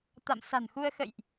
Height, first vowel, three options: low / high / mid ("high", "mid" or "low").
low